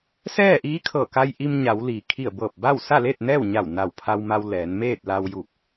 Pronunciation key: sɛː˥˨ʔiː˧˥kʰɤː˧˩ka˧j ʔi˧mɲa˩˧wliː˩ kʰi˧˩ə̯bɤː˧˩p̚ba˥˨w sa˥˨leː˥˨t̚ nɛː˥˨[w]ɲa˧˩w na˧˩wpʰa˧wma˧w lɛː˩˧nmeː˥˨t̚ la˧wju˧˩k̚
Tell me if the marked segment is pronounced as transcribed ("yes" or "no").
yes